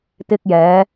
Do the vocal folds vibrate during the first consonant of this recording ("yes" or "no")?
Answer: no